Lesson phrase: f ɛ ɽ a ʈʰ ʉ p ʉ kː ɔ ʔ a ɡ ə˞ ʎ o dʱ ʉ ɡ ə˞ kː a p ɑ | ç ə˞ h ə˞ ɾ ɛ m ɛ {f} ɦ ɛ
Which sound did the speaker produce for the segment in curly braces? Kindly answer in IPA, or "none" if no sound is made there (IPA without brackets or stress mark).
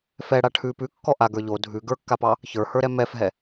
f